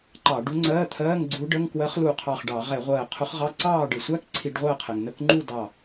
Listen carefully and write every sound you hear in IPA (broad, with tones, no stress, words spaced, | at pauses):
ǃɑ˧˩˧ɖu˧˥ŋ͡ǀɜː˧˥˧t̪ʰɜː˧˥˧ŋ ɡ͡ǀu˧˥ɖə˧˥˧ŋ kwɜ˧˥χlu˧˩qʰɑ˧˩χɖɑ˧˩˧ ʁɛ˧˩˧ʁʷɜː˧˩qʰʊ˧˥χʁɑ˧˥˧ ǀɑː˥˨ɖɪ˧˩˧sʷæ˧˥˧k ǀʰi˧˩˧ɖʁʷɜː˥˨qʰɛ˩ŋ nə˧˥˧kŋ͡ǃu˥˨ dɑ˧˩